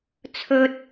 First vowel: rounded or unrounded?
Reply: rounded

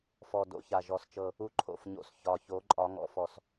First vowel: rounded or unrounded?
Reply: rounded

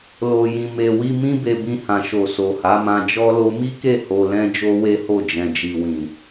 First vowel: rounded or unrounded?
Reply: rounded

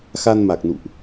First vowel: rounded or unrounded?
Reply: unrounded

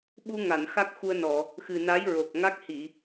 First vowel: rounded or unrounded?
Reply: rounded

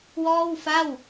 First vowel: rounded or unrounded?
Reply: rounded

